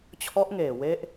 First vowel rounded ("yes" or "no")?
yes